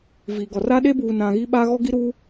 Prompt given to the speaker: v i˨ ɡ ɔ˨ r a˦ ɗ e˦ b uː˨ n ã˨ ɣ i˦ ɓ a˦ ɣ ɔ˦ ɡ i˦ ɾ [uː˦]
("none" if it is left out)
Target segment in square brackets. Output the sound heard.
u˦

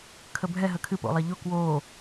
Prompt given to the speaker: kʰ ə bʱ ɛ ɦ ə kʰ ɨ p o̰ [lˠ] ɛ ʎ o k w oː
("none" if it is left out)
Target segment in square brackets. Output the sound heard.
lˠ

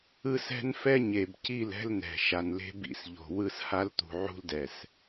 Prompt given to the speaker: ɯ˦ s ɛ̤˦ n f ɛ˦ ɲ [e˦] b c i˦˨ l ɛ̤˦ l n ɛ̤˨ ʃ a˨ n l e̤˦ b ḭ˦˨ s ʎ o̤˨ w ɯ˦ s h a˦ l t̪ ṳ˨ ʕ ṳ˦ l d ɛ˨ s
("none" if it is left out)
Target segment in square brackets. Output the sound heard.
e˨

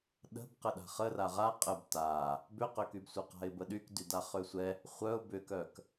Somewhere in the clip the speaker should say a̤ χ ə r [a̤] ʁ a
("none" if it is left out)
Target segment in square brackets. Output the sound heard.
a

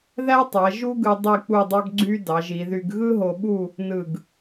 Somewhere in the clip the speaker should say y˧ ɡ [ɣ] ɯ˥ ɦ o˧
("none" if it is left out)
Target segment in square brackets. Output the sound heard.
ɣ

